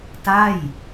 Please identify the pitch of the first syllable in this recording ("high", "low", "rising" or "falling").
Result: falling